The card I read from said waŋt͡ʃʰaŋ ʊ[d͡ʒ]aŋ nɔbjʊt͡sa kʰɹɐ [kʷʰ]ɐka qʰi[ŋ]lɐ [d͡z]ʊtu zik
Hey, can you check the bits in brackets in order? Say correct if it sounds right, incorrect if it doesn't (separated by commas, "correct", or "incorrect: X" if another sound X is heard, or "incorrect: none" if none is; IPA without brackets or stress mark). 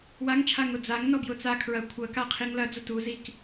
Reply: incorrect: d͡z, correct, correct, correct